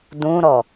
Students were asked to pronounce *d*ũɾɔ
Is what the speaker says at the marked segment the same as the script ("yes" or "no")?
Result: yes